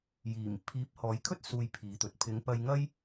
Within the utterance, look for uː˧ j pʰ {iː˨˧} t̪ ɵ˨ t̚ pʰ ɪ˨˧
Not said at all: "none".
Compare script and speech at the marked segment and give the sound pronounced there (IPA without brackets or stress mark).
iː˨˧